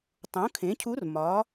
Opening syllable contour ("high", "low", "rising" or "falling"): rising